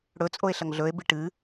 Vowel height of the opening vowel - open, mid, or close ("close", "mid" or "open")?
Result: mid